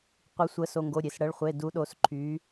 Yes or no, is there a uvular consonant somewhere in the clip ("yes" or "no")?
yes